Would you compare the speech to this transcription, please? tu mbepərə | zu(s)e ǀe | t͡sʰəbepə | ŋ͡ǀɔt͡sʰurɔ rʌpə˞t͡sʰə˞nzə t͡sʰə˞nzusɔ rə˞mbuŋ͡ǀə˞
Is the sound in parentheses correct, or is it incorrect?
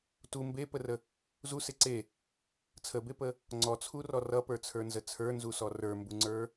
correct